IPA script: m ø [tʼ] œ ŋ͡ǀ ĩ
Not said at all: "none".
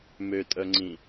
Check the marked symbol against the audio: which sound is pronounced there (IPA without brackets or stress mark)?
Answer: tʼ